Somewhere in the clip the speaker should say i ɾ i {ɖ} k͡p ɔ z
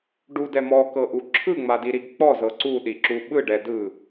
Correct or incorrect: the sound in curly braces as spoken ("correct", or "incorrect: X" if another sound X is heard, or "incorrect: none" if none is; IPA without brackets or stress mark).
incorrect: ɡ